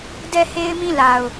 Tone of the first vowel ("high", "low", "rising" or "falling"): falling